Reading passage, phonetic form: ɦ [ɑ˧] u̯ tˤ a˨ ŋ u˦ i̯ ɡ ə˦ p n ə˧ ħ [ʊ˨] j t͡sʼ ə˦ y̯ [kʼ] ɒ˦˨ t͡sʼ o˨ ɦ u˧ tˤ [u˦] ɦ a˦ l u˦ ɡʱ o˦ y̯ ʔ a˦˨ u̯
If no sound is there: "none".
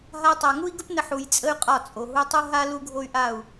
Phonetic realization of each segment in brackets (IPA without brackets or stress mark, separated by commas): a˧, u˨, qʼ, u˦